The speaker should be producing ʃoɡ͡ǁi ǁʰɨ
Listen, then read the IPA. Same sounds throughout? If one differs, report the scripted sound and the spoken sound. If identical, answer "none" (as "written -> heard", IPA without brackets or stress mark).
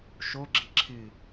none